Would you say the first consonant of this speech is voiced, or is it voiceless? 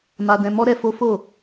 voiced